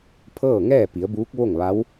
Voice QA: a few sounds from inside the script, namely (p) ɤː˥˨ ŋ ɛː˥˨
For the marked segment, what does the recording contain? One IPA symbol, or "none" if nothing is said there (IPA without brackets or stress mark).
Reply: pʰ